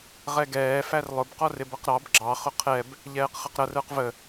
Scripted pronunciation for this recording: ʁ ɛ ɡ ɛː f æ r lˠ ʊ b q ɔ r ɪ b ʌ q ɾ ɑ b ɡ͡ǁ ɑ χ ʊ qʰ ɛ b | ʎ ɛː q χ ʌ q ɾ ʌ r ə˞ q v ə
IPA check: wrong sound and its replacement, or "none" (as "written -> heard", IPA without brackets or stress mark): none